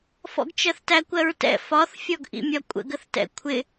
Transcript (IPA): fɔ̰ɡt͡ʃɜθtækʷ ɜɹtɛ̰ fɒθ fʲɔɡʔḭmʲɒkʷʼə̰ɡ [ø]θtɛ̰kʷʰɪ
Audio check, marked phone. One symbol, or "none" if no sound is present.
ə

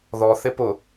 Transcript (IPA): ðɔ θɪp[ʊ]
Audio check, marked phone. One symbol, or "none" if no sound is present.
ʊ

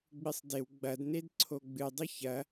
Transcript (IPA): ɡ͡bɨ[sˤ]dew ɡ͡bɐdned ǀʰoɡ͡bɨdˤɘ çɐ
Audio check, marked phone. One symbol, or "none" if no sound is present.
sˤ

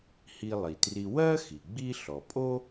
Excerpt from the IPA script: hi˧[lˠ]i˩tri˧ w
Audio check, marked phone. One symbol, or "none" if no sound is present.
lˠ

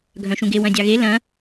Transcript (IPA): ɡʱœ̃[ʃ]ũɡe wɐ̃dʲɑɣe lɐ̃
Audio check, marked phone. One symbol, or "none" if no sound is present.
ʃ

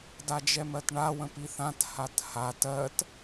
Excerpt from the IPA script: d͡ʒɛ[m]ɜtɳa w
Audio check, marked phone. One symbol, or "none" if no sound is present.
m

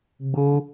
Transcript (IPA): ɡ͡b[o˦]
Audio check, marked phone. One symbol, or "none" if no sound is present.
o˦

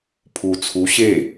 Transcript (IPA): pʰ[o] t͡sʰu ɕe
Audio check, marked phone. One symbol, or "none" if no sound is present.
u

